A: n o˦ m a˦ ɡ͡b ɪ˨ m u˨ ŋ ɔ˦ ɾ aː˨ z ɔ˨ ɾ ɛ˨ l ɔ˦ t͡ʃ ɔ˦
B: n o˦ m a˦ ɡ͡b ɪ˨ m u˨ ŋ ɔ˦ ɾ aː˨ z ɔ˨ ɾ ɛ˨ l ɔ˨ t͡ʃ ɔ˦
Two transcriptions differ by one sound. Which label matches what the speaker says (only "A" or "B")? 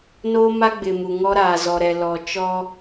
B